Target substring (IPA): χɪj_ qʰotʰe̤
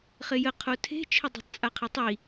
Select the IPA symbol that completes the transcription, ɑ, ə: ə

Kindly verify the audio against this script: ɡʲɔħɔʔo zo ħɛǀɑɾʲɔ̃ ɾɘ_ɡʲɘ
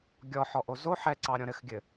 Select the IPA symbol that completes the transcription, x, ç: x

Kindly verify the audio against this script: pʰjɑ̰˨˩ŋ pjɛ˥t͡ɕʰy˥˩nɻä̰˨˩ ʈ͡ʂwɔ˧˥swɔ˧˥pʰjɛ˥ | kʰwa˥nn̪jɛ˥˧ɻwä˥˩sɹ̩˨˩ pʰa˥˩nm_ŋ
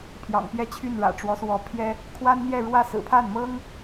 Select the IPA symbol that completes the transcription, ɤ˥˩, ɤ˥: ɤ˥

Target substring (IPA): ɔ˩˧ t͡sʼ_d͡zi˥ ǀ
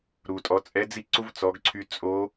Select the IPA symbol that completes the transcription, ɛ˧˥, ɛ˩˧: ɛ˧˥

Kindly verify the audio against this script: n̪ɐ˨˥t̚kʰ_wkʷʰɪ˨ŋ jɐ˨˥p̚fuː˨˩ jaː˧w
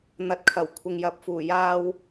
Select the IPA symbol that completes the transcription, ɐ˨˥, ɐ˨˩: ɐ˨˩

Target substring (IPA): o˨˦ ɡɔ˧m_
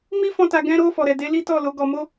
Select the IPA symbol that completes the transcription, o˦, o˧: o˦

